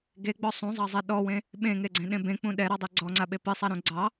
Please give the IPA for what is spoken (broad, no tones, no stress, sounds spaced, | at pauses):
ɡ e ɡ͡b ɔ sˤ ũ zˤ ɑ zˤ ɛ ɗ ɔ w ẽ | ɓ ẽ ŋ e ɡ͡ǀ ẽ ɗ ẽ b ẽ k͡p ũ ɗ ɛ ɾ ɔ dˤ ɛ ɡ͡ǀ ɔ ŋ͡ǀ a ɓ e p ɨ sˤ a ɾ ũ ɡ͡ǀ ɑ